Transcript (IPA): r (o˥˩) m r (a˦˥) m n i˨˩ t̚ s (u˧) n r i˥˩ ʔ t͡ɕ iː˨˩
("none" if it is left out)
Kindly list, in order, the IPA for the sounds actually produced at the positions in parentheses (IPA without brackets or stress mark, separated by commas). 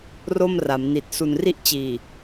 o˥˩, a˩˦, u˨˩